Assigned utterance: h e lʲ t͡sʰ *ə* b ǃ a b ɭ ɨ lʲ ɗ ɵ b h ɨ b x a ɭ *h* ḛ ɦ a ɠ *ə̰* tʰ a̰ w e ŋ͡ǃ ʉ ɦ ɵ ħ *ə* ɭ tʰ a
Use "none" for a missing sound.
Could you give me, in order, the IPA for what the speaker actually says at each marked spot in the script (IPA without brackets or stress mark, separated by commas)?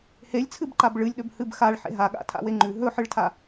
ɨ, ħ, a̰, ɨ